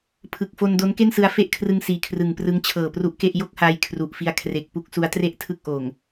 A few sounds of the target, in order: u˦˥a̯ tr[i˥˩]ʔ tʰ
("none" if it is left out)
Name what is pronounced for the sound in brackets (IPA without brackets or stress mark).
e˥˩